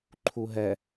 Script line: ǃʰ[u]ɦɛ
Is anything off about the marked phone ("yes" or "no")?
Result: no